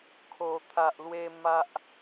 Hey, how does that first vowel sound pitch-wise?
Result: low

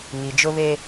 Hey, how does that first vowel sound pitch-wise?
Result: low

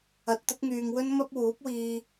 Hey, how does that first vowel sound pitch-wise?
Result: rising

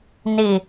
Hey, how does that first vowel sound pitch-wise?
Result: low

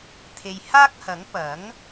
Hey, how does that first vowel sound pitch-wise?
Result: low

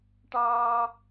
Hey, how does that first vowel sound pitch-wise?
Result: high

